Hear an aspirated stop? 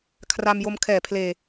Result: yes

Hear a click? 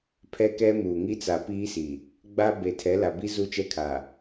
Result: no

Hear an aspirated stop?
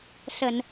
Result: no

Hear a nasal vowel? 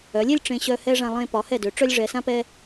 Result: yes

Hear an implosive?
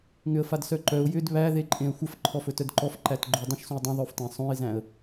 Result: no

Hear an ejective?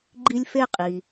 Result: yes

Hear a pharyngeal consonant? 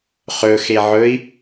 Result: yes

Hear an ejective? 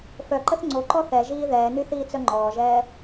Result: no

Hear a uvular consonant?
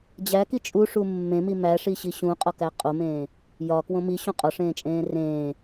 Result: yes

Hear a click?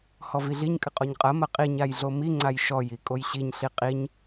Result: yes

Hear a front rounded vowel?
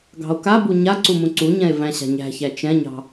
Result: no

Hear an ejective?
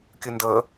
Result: no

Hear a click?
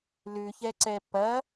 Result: yes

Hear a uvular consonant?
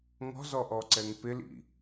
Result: no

